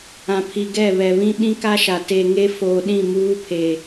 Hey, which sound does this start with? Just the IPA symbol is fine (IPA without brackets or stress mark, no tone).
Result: ã